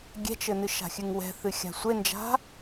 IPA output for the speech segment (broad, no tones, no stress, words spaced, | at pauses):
ɡʲɛ̤t͡ʃɘnɨ ʃa̤xʲɨŋwɛ̤ θɨxʲa̤sʷend͡ʒa̤